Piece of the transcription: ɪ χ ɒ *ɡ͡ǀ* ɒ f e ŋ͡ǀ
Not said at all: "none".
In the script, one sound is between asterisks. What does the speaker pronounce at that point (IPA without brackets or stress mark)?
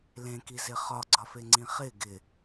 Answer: ɡ͡ǀ